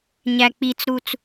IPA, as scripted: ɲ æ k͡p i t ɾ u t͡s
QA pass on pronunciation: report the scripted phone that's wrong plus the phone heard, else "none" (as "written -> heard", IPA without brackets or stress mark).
t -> t͡s